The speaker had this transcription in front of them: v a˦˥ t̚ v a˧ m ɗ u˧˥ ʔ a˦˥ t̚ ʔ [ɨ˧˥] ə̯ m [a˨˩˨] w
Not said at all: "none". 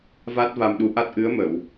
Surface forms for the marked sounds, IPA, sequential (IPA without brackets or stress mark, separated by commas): ɨ˧˥, ə˨˩˨